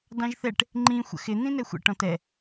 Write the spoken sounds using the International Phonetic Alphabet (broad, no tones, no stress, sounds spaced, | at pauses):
d ɑ̃ ʒ θ ɛ ʈ | ŋ͡ǃ ĩ xʷ ə̰ x ɪ n̪ ĩ n ɛ xʷ ə̰ ʈ ɔ̃ t ɛ